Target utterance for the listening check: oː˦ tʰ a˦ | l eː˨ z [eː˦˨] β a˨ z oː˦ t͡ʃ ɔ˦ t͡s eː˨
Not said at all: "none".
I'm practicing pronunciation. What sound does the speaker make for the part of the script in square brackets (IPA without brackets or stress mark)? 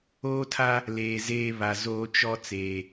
eː˦